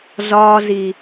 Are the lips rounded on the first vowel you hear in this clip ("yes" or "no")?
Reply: yes